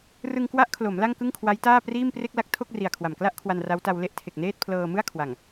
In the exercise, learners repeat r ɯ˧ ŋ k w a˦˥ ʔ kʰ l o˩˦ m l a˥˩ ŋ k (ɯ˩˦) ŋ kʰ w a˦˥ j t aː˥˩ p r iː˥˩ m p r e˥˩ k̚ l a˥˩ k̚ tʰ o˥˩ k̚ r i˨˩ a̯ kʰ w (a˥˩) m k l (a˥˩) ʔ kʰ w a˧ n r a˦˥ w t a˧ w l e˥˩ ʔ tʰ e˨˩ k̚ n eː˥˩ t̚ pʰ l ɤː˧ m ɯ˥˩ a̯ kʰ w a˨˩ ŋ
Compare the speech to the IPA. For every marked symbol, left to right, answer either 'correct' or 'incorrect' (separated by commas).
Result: incorrect, incorrect, correct